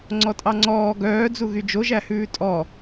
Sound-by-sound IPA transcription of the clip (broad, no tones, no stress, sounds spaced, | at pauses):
ŋ͡ǀ ɔ tʼ ɑ ŋ͡ǀ ɔː ɡ œː d͡z u ɣ y d͡ʒ o ʒ æ h ʉː tʼ ɔ